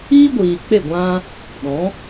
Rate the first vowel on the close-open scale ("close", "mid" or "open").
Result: close